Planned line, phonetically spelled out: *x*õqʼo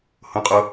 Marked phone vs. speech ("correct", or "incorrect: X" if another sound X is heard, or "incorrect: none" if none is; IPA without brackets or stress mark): incorrect: h